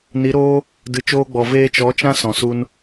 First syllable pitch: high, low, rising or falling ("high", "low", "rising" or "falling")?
rising